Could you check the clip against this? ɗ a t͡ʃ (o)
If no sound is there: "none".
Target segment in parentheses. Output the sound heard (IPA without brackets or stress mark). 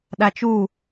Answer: u